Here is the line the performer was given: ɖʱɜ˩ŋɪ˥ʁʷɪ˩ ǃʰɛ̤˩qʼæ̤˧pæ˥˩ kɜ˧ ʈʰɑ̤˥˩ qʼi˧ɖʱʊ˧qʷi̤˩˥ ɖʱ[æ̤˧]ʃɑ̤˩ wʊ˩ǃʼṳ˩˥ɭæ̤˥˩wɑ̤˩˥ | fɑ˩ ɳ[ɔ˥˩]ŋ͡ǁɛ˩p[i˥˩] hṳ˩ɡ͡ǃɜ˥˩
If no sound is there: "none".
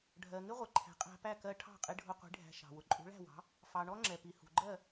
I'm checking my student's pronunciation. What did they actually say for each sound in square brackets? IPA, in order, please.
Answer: æ̤˧, ɔ˥, i˩

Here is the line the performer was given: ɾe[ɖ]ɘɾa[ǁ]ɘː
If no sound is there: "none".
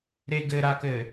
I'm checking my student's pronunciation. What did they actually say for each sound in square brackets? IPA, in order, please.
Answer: ɡ, k

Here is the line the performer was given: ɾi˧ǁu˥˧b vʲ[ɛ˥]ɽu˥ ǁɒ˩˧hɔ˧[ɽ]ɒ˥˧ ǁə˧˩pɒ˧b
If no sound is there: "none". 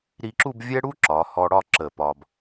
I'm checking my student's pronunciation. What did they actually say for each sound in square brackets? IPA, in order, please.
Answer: ɛ˥, ɽ

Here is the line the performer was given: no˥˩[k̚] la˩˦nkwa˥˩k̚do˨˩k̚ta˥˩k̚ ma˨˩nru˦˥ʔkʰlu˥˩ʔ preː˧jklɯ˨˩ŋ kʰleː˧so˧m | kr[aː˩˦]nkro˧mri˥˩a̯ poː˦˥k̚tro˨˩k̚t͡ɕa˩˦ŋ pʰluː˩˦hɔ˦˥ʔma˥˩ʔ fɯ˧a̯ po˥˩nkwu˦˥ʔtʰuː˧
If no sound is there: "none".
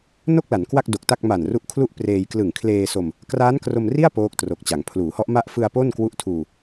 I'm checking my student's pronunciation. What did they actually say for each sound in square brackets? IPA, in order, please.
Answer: k̚, aː˦˥

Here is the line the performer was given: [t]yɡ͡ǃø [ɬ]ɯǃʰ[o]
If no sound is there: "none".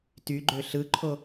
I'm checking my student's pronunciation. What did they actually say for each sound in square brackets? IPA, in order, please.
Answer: t, ɬ, o

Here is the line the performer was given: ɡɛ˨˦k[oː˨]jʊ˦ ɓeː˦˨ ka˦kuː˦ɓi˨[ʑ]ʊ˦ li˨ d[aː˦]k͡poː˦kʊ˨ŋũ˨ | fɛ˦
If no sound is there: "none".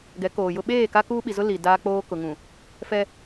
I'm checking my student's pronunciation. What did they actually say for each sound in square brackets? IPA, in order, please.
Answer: oː˨, z, aː˦

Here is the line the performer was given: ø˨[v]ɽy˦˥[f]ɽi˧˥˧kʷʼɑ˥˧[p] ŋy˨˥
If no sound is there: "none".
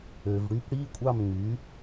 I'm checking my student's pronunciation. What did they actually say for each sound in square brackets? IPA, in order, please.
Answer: v, p, m

